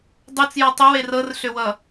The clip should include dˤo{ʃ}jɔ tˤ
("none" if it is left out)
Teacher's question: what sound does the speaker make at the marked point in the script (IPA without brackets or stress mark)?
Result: t͡s